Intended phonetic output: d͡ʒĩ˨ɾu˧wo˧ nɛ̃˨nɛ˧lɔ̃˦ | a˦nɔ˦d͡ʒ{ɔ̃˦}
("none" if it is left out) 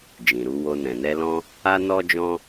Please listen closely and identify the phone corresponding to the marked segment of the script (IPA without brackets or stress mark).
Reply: ɔ̃˦